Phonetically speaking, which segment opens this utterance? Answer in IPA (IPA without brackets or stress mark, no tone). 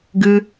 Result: ɡ